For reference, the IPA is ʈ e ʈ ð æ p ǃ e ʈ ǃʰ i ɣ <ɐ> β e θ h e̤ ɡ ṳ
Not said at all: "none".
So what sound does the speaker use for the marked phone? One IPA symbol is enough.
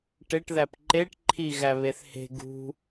æ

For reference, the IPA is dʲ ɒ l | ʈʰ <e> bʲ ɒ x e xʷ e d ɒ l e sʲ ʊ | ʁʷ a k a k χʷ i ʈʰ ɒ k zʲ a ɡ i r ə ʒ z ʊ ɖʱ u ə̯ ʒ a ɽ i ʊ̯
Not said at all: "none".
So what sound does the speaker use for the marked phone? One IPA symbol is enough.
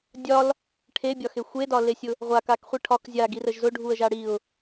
e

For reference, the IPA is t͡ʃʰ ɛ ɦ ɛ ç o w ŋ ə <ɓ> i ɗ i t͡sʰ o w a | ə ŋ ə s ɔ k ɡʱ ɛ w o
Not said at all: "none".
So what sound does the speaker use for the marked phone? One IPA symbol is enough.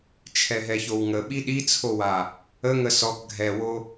ɓ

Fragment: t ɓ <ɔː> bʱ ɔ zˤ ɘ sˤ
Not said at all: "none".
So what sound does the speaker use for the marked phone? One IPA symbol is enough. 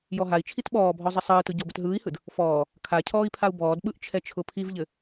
ɔː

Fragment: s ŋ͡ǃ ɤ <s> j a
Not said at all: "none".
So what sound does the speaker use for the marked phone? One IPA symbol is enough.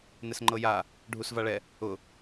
none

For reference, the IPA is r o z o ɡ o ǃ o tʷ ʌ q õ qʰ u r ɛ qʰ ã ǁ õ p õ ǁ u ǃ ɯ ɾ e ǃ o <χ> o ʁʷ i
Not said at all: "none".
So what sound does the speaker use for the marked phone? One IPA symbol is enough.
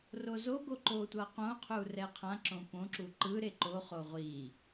χ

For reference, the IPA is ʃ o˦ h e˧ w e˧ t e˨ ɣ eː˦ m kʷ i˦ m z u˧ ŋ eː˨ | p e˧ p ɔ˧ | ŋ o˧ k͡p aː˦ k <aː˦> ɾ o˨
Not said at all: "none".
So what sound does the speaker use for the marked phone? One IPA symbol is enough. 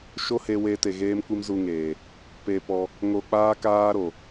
aː˦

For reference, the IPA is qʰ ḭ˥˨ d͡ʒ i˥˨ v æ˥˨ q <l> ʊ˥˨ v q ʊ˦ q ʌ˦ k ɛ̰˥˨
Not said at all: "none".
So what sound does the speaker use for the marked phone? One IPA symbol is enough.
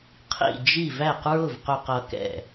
ɹ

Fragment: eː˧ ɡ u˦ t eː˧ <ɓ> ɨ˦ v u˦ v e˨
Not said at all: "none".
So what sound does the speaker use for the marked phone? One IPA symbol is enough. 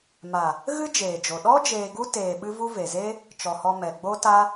ɓ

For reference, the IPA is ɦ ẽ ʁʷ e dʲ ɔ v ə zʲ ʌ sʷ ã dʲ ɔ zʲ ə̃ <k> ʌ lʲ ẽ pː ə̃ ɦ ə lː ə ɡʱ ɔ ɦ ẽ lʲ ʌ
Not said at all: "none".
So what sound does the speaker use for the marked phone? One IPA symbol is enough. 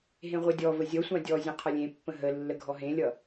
qʰ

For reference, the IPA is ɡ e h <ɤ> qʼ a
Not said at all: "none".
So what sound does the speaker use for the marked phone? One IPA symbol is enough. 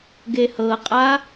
ɤ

